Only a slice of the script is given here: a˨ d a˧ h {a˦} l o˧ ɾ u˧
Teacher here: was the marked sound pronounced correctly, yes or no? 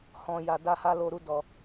no